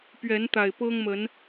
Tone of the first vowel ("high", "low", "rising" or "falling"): rising